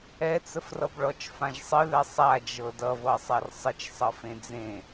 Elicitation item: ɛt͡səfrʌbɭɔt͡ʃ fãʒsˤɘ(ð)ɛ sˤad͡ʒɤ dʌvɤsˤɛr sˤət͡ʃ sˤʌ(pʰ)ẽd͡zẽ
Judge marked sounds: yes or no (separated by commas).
yes, no